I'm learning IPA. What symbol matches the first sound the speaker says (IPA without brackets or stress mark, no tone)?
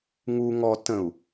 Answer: ŋ